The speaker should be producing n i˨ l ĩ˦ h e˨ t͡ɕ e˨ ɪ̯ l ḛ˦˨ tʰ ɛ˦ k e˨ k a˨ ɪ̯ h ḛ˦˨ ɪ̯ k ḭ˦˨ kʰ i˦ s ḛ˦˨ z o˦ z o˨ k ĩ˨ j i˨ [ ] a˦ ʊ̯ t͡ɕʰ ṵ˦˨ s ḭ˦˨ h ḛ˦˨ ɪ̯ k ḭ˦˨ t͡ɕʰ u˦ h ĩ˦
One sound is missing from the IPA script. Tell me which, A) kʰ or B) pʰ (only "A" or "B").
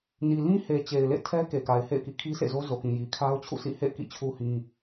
A